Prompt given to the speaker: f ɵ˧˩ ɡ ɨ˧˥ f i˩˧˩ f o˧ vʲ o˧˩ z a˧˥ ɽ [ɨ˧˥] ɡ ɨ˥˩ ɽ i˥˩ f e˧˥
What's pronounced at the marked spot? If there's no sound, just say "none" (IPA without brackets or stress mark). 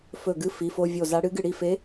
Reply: ɨ˧˥